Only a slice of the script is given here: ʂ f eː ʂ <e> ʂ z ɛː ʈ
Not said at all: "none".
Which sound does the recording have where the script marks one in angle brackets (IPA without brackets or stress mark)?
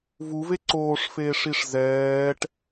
i